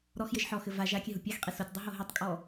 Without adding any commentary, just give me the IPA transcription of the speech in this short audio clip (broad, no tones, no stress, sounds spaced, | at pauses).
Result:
ɾ ɔ x j ɘ ʒ ħ ɔ x ɘ v a ʒ a kʲ ɘ ɦ u pʲ a x qʼ i s o tʲ dˤ u ɦ o ɦ ɘ tˤ kʼ ɔ